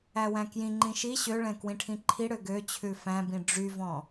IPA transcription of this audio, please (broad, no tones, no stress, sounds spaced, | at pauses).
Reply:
æ w æ̃ k j ĩ ŋ͡ǃ ĩ ʃ i ɕ ø ɭ ɛ̃ k w ĩ ʈʰ ĩ ǃʰ i ɽ ø ɡ ø t͡ɕʰ ʉ f æ̃ b ĩ ɖ͡ʐ y v ɔ̃